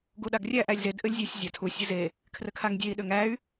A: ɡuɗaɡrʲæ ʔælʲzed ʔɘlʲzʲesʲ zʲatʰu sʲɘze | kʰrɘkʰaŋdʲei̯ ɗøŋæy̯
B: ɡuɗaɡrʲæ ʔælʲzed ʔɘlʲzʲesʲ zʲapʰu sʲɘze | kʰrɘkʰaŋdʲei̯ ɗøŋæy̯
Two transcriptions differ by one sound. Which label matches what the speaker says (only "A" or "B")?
A